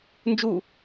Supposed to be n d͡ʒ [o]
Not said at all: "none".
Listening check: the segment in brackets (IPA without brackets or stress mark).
u